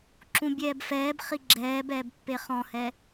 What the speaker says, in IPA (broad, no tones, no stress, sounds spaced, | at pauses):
ǁ ũ bʲ ɛː b f ɛː b χ i ɡ͡ǁ ɛː b ɛː b pː e χ ɔ̃ h ɛ